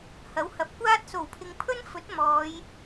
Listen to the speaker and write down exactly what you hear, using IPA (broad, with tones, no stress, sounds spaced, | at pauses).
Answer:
h ɐ˨˥ w h ɐ˨ p̚ kʷ aː˥ t̚ s o˨˩ w pʰ ɪ˨˧ ŋ pʰ ɵ˥ n f ɵ˨˥ t̚ m ɔː˨˧ j